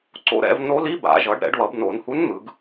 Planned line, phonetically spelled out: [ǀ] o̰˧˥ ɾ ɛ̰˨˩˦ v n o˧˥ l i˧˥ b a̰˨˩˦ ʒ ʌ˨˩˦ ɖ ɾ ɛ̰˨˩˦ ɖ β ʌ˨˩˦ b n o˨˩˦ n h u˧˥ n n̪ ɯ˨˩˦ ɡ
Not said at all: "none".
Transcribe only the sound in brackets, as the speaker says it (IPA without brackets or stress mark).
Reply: ǀ